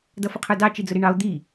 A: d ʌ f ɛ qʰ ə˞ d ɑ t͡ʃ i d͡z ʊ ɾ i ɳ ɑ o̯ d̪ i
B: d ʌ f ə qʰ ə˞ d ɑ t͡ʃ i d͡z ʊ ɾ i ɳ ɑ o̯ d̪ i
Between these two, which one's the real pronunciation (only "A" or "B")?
B